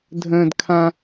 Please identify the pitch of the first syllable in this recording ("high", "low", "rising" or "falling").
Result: high